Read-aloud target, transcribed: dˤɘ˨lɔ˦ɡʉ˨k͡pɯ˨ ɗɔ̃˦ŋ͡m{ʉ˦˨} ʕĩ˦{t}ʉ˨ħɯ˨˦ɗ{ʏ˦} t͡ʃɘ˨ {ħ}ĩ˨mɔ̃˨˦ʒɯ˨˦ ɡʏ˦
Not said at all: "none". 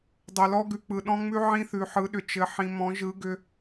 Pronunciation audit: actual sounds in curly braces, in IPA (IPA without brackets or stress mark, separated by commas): ʉ˦, θ, ʏ˨, ħ